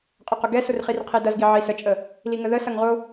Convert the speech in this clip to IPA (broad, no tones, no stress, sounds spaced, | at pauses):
qʼ ɐ q ʊ ɡ ɛ s ʊ r χ i r qʰ i d ɐ z ɡ i ʕ i s ə t͡ʃʼ ə | l i ŋ ə ð ə s ɐ ŋ ʁ ʊ